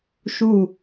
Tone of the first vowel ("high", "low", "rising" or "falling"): falling